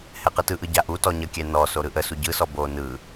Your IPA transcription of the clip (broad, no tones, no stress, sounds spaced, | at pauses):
h ɛ q ɯ t ɯ ʔ ɯ ɟ a ʔ u t ɔ ɲ ə kʲ ɛ n ɔ s o ɾ ɯ ʔ ə s u ɟ ɯ s ɔ b o n ɯ